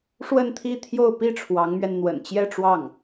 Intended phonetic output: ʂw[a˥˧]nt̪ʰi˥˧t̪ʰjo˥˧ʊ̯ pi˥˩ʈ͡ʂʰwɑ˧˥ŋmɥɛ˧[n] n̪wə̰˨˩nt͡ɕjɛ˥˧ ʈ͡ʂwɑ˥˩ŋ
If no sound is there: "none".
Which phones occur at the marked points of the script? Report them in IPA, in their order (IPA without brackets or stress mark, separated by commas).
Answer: ə˥˧, n